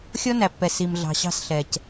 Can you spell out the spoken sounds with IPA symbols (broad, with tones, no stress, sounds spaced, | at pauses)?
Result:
xʲ ɔ˦ n æ˨ pː ɛ˨ s i˨ m ɮ ɑ̤˨ ɕ ɑ̤˦ s ɬ ɛ˨ c